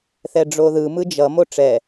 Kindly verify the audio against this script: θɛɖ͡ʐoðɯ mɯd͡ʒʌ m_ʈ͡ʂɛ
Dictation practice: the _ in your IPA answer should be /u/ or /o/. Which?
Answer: o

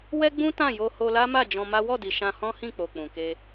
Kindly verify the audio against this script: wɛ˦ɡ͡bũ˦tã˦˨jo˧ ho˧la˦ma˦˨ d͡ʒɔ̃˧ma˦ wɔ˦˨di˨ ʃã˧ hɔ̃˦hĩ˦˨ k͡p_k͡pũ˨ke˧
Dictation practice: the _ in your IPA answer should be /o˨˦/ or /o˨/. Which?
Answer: o˨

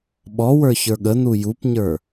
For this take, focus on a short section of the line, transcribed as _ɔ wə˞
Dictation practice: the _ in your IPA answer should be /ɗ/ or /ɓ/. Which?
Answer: ɓ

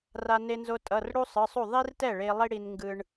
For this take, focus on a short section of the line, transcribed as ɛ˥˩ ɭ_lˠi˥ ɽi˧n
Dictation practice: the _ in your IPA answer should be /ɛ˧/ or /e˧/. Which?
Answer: e˧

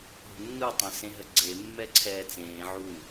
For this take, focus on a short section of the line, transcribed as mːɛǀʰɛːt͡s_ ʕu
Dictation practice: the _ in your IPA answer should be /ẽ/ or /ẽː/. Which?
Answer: ẽː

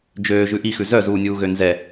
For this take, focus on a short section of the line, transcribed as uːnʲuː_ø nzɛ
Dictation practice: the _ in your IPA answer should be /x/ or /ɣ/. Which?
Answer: ɣ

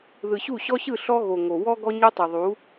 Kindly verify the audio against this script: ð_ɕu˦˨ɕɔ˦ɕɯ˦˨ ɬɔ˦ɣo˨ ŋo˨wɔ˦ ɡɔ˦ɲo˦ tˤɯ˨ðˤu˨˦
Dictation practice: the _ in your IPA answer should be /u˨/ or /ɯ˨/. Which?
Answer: ɯ˨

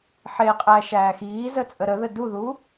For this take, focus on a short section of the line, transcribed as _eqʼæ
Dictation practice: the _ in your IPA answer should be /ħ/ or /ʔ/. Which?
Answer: ħ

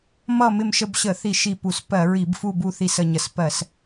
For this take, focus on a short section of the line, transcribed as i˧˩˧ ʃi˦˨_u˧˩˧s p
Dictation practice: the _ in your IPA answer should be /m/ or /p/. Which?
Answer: p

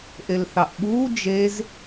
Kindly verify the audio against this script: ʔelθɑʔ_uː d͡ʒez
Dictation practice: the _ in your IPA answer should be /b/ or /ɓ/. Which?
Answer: ɓ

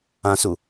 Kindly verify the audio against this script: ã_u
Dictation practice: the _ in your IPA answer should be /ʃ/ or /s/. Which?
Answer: s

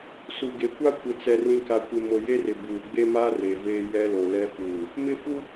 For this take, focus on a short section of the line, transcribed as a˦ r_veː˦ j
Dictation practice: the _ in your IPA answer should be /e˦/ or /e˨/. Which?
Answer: e˨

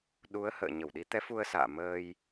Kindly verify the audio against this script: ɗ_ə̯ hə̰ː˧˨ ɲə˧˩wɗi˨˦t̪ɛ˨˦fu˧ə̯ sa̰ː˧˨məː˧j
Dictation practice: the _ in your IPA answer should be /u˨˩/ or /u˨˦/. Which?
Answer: u˨˦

